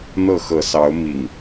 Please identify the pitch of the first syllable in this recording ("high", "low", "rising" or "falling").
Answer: falling